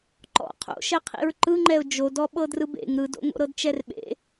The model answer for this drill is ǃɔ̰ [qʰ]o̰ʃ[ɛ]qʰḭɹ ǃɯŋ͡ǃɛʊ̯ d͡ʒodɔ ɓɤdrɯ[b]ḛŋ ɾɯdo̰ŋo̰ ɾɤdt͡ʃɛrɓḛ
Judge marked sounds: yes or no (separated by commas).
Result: yes, yes, yes